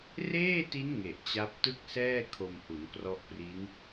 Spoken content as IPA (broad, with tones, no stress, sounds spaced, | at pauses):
r eː˥˩ t i˦˥ n ŋ e˨˩ ʔ t͡ɕ a˦˥ p̚ t ɯ˥˩ k̚ s ɛː˥˩ kʰ o˧ m h u˩˦ n k r ɔ˦˥ ʔ p r i˦˥ n